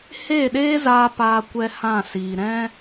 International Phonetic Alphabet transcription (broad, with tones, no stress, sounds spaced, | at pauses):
h eː˦˨ ɗ eː˦ z aː˧ p aː˧ kʷ ɛ˧ h ã˦˨ s iː˨ ɾ ɛ̃˦